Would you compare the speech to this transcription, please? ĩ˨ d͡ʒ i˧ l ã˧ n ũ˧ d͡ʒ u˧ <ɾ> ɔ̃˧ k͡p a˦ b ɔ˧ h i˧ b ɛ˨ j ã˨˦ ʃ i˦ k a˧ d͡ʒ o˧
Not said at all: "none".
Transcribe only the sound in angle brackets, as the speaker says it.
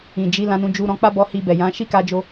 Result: ɾ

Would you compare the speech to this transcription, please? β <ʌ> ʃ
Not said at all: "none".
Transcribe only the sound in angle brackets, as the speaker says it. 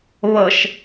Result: ʌ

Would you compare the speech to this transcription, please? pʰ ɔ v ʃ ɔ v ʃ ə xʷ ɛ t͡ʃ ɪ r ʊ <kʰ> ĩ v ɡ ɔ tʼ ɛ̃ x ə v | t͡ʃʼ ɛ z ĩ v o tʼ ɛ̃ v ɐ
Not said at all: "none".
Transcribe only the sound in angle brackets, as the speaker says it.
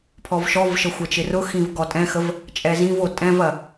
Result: x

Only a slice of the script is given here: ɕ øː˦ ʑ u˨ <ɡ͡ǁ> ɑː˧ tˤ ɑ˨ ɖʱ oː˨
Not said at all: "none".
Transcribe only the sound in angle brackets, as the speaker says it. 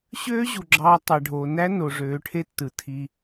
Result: ɡ͡ǁ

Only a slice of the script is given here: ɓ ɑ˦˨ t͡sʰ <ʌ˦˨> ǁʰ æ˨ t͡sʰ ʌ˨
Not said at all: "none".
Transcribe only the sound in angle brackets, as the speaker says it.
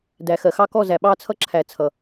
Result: ʌ˦˨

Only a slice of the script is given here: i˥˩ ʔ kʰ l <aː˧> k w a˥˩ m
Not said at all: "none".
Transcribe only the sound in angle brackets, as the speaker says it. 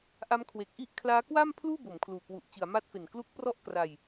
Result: aː˦˥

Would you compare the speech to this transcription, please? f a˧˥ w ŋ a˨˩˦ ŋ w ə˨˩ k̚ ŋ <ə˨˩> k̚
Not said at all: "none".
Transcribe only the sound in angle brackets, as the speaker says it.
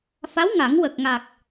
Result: a˨˩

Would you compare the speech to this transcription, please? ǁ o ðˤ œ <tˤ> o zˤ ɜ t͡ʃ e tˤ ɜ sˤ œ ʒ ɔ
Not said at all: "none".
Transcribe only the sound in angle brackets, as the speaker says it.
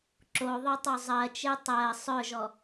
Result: tˤ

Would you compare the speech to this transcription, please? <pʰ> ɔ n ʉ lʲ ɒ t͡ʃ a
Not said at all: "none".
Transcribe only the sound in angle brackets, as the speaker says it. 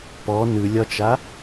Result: p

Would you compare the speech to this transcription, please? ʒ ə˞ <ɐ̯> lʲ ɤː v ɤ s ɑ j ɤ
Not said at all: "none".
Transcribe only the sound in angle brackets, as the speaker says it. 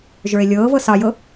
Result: e̯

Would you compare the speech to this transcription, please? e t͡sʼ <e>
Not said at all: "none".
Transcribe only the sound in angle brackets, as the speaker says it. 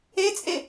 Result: e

